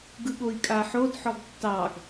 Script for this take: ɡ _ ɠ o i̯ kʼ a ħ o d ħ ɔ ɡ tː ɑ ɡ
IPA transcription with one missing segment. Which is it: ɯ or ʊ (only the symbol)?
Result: ɯ